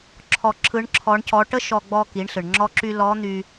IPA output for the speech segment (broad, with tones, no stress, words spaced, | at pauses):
ǁʰɔ˧ ǁʰɯ˧˥ɳǁʰɔ˧˥ɳcɔ˧˥ ʈə˥ʃɔ˧ɡ͡bɔ˧ ki˩˧ɳɬɯ˩ɳŋ͡ǁɔ˧ǁy˧ lɔ˧˥n̪y˧